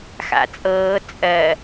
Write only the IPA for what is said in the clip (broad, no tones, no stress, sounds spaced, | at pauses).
x a̰ t͡sʼ ɤː t͡sʼ ɜ